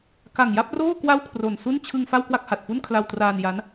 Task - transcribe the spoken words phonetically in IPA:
ka˨˩ŋja˥˩p̚roː˥˩ kwa˥˩wkʰro˨˩nsu˥˩n t͡ɕʰɯ˧ŋ fa˥˩wkwa˥˩k̚ha˨˩t̚fu˥˩n kʰla˧wtraː˧n ja˦˥n

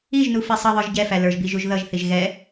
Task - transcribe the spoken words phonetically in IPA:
iʒnu fisˤʌðˤə˞ʒ ɟɛfæ lə˞ʒbiʒ uʒðʌʒθiʒ ɣɛ

